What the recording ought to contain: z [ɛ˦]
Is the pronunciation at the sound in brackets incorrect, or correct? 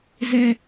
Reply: correct